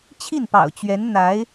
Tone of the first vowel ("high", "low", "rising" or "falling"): falling